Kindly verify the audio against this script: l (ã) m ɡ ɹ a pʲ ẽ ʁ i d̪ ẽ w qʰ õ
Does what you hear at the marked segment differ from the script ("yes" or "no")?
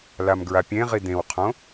yes